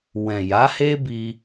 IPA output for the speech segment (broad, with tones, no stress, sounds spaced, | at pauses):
w ɛ̃˨ j a˨˦ h e˦ b i˧